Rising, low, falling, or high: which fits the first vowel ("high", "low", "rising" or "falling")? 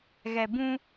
low